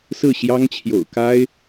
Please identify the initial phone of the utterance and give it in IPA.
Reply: s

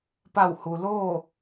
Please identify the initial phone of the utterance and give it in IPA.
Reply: p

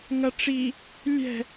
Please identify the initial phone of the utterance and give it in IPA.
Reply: ŋ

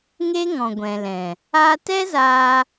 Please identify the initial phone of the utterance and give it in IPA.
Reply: ŋ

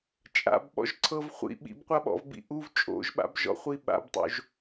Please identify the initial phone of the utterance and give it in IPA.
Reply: t͡ʃʼ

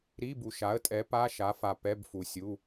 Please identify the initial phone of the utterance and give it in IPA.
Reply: ɾ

